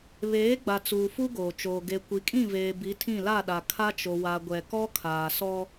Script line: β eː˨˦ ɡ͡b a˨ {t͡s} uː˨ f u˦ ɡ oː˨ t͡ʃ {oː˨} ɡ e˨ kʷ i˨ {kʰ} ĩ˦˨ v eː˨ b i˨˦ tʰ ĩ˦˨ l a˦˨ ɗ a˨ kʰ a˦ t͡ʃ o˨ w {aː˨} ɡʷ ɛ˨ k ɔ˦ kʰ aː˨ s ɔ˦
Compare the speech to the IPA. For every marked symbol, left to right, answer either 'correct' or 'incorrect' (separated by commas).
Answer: correct, correct, incorrect, incorrect